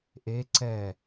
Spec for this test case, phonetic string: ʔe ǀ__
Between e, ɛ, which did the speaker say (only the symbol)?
ɛ